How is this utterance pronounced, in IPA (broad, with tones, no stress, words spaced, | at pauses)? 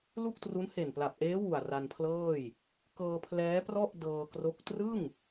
lu˥˩k̚tru˦˥n he˨˩npla˨˩p̚ʔeː˦˥ wu˨˩a̯ ra˧npʰlɤː˥˩j | kɤː˧ pʰlɛː˦˥prɔ˥˩ʔ dɤː˧kro˦˥k̚ trɯ˥˩ŋ